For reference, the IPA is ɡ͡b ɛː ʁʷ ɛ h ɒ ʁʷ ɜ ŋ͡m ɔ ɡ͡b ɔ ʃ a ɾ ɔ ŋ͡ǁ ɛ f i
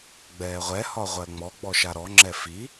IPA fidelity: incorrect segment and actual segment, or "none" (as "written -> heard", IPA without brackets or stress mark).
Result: none